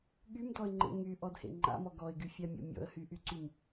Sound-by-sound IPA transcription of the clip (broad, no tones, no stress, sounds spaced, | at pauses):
ɠ y m d ɔ ɪ̯ ŋ͡ǃ ḛ ŋ y ʔ ɔ d h ḛ ŋ͡ǃ a̰ m ɔ ɡ ɔ ɪ̯ ɡ y fʲ a mʲ ɔ̰ mʲ ɔ̰ ə̯ h y ʔ y ǀ y m